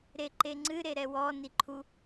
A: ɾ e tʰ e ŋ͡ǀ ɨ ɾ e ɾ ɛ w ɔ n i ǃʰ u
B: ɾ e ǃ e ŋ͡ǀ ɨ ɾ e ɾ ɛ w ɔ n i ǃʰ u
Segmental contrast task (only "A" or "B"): B